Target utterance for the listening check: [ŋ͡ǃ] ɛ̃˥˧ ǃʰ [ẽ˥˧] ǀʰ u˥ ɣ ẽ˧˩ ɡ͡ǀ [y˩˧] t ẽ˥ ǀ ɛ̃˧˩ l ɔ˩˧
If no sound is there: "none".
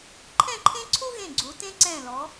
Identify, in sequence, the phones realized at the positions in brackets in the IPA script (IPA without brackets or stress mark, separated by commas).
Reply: ǃʰ, ẽ˥, u˩˧